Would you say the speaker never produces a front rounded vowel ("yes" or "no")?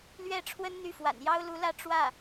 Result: no